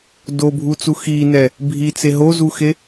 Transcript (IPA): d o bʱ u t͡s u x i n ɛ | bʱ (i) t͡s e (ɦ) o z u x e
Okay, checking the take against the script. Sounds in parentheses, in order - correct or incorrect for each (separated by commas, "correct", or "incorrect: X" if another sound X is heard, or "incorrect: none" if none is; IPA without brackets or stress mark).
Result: correct, correct